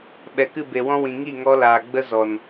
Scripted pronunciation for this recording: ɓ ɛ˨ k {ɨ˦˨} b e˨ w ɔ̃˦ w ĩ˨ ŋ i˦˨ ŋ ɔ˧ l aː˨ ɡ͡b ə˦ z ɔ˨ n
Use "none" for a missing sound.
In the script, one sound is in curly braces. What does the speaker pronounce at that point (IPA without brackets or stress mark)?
ɨ˦˨